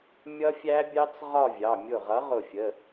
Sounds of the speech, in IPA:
mʲ ʌ˦˥ fʲ æ˦˥ bʲ ɑ˦˥ t͡s ʁ ɒ˥˧ vʲ ɑ˩˧˩ mʲ ʊ˧˩ ʁ ʌ˨˥ ʁ ʊ˧˩ fʲ ə˩˧˩

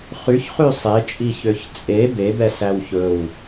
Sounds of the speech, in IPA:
χ y ç χ y sˤ e t͡ʃʼ i ç ø ç t͡sʼ e b e b ɛ s æ w ç ɵ w

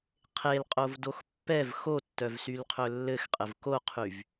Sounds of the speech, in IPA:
qʰ e l qʼ o v d o x pː ɛ v x o tː œ v s y l qʰ ɵ lː ɘ x qʼ ɘ v k o qʰ y v

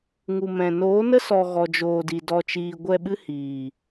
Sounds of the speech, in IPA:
ŋ u˨ m ɛ̃˨ n oː˨˦ n ə˦ s ɔ˨ ɣ ɔ˨ d͡ʒ oː˨ d i˨ d ɔ˨ t͡ʃ iː˨ ɡʷ ɛ˧ ɓ ɨ˦ h iː˨

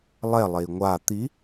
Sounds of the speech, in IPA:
lˠ ɛ lˠ e i̯ ŋʷ a t̪ i

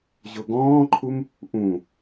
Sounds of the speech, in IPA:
ʑ o ɡ ɔ̃ː ǃʰ u m | ʔ ũ

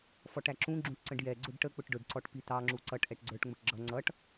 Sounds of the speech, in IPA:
f ɔ ʈ æ ǁ ũ ɡ͡ǁ ũ ʈ ǀ ə̃ ɖ j ɛ ɡ͡ǀ ʊ ɖ ʈ ə k͡p ʊ ʈ ɖ ʊ ɖ ǀ ɔ ʈ p i t̪ ɑ ŋ͡ǁ u ǀ ʌ ʈ ʔ ɛ ʈ ɡ͡ǀ ə˞ ʈ ŋ͡m ʊ ʈ ɡ͡ǁ ʌ ŋ͡ǀ ʌ ʈ

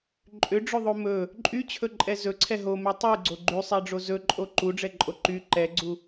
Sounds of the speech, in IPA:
ǃʼ ʏ ɖ͡ʐ ɵ ðˤ o m ɵ | ǃʼ y t͡ɕʰ ɵ ǃʼ ɛ z ɵ ǀʰ ɛ ɦ o m ɛ tˤ y ɡ͡ǀ o ɡ͡ǃ y sˤ ɛ ɖ͡ʐ o z ɵ ǃʼ o ǃ u ɖ͡ʐ ɛ ǃʼ o ǃ y ǃ ɛ ɡ͡ǀ u

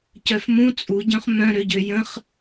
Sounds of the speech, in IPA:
c œ f m ũ t͡sʼ u ɟ œ̃ χ m œ̃ ɾ ø ɟ ø j ə̃ χ

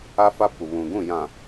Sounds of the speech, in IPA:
a˦ f a˦ p u˨ β ũ˨ ɡ ũ˦˨ j ã˨

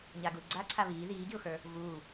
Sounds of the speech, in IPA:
ɲ a ɡ u ɪ̯ ɡ͡ǀ a ǀʰ a β iː ð iː ɡ i ʊ̯ x ə˞ | v uː

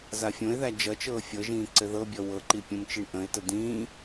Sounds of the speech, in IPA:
z a fʲ õ ɪ̯ ð æ d͡ʒ ʌ t͡ʃ ɤː fʲ ɤ ʒ ĩː ǀ ɘ ð ɤ bʲ ɔ w ɤ ǃ i pʲ õ m t͡ʃ i ɳ ʔ ə̃ ɪ̯ t ə d ĩː

